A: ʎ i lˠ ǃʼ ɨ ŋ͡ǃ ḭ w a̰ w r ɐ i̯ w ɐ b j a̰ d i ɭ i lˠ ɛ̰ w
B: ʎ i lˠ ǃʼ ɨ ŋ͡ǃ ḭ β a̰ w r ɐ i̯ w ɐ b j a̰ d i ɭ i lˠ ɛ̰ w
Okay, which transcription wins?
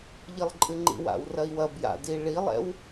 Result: A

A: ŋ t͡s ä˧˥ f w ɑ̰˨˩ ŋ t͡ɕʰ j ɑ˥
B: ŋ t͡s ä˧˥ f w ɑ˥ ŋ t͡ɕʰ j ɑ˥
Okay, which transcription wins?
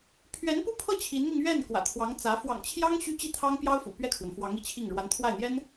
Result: A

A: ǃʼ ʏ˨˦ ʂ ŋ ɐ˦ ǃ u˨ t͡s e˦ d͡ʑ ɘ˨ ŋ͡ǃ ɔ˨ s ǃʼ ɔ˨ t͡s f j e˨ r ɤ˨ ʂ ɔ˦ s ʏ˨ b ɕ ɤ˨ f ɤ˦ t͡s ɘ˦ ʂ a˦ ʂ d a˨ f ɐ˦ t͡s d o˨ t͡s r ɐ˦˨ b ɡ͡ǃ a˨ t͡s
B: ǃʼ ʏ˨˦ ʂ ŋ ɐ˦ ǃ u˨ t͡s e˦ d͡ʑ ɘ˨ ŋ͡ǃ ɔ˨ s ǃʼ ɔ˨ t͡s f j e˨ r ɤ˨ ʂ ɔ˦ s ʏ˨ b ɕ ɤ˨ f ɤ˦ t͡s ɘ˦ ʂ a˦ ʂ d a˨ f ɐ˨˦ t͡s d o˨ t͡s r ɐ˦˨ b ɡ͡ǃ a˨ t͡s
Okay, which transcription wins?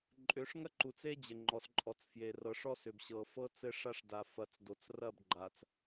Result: B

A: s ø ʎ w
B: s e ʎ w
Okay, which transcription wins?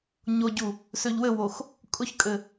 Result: A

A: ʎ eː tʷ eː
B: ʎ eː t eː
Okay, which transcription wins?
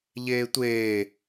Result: A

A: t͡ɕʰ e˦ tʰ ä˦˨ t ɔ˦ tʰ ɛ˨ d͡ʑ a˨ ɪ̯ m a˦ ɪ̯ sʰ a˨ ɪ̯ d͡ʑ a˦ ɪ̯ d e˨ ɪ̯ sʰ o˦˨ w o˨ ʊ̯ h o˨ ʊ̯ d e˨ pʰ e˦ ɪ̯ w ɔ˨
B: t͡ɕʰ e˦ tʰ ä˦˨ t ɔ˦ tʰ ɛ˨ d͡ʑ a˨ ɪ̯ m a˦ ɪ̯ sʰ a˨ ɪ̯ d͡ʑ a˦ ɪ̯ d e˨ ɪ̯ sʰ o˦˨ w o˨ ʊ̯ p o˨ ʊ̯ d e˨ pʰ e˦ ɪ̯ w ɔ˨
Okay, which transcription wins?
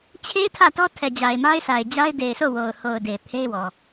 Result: A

